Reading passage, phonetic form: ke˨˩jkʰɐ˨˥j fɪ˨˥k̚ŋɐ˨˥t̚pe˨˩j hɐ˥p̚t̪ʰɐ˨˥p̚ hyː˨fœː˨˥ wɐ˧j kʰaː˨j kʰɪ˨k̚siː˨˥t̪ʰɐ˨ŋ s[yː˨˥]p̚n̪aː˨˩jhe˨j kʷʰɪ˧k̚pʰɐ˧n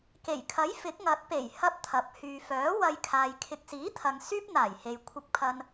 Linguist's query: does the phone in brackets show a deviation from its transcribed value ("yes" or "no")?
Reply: yes